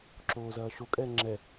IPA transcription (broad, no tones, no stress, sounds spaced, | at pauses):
ǁ oː z ɐː ʃ o kʼ ɛː ŋ͡ǁ ɛ